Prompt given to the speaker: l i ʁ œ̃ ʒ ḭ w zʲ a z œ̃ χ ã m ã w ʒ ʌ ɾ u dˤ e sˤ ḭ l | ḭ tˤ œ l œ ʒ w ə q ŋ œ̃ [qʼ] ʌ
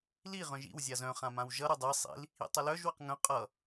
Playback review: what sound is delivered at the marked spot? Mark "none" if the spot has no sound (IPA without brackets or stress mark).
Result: qʼ